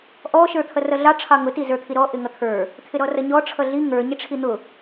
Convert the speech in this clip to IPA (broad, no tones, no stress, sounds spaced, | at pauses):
ʔ ɔ ʃ ə˞ t̪ʰ ʌ r ʌ ɮ ɑ ʈ͡ʂʰ ɑ ŋ ʊ t i z ə˞ t̪ʰ i ɾ ɔ ʔ ɪ ŋ ʌ t̪ʰ ə˞ | t̪ʰ ɪ ɾ ɔ r ʌ ɲ ɔ ʈ͡ʂʰ ʌ ɮ i ŋ ə˞ ɲ ɪ ʈ͡ʂʰ i n̪ ʊ